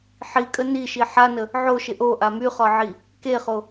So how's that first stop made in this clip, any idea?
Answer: ejective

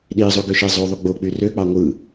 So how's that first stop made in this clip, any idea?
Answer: implosive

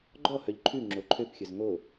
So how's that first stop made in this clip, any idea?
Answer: click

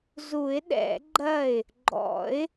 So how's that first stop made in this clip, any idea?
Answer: implosive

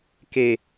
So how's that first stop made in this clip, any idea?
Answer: plain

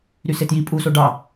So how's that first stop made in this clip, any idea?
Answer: plain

